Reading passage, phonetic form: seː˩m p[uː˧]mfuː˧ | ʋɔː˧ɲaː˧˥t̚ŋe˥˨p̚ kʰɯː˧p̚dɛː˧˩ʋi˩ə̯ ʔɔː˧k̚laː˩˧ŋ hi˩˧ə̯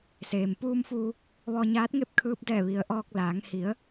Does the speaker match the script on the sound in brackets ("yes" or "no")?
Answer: yes